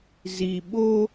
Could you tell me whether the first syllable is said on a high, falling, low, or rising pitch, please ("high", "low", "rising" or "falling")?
low